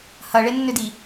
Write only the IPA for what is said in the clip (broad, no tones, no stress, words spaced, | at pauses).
hɐɭenːʏdi